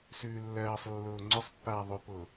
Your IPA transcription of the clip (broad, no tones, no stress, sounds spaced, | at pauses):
s ʉː lː ɜː sˤ lː ʊː ŋ͡ǀ ʊ sˤ pː aː ðˤ ʉ p ʊː